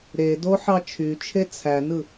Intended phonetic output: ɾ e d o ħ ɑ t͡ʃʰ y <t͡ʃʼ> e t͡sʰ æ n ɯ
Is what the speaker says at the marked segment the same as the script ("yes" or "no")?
no